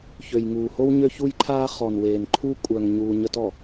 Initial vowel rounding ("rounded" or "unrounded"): rounded